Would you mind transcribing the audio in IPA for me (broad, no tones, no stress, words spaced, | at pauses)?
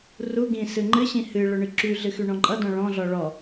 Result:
ru ɡĩ sɨŋ͡ǃɨɕĩ hɨɭɵ ɳɨǁyɮɨ xyɳɔ̃ǃʼʌdɔ̃ ɭɔ̃ɮɔ ɭɔ